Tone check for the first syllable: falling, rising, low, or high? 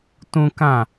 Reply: high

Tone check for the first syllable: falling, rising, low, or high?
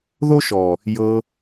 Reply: high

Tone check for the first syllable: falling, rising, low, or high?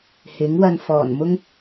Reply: rising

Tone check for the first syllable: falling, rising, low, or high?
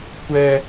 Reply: high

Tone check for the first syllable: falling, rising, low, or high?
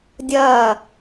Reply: falling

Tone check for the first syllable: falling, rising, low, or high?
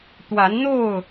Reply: rising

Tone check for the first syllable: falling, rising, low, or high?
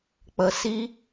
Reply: low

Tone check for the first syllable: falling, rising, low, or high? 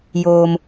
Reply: low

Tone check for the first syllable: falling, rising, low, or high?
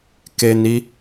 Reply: low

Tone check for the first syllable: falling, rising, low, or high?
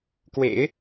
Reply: low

